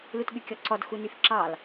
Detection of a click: present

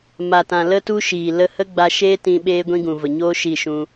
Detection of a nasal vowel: present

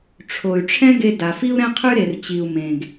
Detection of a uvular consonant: present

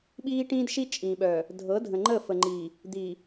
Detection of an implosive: present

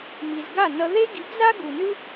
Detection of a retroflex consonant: absent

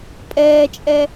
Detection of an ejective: present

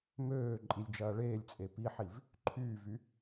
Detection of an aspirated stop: present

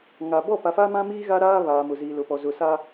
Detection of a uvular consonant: absent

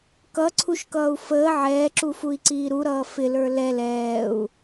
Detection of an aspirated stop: present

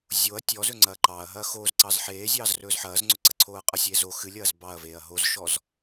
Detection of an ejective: present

